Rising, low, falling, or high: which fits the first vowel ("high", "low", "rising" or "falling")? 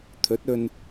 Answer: rising